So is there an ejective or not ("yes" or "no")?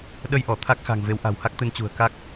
no